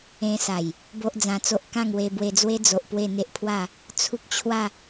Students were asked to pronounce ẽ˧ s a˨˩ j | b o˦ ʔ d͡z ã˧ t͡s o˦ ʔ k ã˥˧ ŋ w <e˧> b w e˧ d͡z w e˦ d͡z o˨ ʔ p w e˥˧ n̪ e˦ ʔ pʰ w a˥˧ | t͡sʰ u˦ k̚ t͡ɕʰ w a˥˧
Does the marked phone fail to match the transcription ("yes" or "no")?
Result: no